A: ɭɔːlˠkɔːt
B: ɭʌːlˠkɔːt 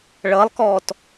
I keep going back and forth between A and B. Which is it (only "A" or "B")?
B